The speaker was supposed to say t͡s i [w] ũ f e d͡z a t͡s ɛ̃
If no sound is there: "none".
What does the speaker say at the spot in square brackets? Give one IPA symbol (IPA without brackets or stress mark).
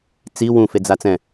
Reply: w